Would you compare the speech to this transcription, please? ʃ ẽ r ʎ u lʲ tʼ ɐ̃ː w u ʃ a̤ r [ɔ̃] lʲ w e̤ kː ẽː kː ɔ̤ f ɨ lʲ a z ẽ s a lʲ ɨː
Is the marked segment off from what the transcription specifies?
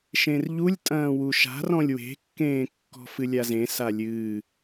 no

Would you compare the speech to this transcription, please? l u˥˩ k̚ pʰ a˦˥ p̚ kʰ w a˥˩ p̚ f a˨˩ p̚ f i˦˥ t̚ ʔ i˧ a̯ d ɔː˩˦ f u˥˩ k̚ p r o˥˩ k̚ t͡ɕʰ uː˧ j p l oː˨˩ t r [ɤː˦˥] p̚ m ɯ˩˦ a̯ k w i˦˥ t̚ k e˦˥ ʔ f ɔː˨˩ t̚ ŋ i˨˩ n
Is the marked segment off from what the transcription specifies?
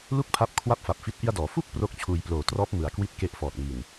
yes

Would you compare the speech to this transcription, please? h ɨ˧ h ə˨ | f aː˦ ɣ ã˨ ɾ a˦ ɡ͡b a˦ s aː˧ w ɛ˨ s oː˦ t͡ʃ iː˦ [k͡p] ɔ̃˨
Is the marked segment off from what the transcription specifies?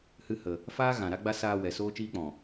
no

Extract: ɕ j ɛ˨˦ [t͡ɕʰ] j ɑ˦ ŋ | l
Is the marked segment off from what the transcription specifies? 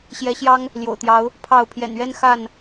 yes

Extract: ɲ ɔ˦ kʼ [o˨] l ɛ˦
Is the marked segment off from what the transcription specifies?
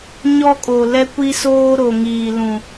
no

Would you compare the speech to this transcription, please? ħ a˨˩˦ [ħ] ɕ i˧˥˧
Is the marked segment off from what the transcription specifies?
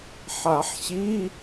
no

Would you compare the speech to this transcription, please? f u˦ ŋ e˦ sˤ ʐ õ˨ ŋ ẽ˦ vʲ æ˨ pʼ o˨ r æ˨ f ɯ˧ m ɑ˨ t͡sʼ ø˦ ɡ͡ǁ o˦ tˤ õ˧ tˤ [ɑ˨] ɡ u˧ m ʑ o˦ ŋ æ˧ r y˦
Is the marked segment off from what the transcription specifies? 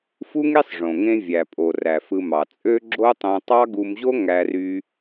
yes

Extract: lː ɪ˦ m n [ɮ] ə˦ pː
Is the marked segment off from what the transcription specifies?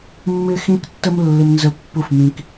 yes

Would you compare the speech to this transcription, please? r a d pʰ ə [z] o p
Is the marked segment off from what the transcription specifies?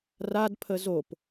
no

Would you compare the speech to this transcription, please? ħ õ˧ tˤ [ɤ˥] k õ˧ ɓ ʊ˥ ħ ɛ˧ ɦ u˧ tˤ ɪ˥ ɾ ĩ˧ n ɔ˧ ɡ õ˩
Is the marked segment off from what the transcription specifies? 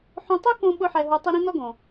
yes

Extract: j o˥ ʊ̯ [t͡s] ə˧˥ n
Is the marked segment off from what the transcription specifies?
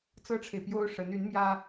yes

